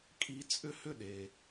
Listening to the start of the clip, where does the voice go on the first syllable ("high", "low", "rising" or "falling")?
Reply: high